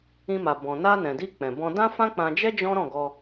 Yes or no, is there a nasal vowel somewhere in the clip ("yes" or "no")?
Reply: yes